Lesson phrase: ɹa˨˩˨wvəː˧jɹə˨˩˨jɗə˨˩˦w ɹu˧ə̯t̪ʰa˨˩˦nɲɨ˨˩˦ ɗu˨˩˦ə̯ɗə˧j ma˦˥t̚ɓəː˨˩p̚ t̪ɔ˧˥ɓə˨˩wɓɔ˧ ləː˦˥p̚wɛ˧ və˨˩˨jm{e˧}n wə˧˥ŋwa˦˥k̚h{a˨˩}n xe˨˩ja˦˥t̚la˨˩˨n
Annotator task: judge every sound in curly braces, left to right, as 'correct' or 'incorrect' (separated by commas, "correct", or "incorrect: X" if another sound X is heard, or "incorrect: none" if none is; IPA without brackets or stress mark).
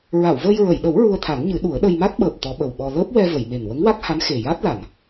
incorrect: e˨˩, incorrect: a˧˥